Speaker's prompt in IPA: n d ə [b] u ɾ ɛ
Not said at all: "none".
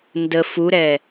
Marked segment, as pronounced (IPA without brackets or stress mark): f